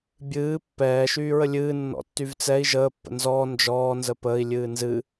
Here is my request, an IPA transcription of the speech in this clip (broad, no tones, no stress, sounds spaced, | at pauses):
bʲ ɨː pː ɛː ʃ yː ɹ ə lʲ ɨː nː ɔ̰ tː y v t͡s ɛ i̯ ʒ əː pː ə̰ n z ɔː n d͡ʒ ɔː n z ə p əː i̯ lʲ ɨː n z ɨ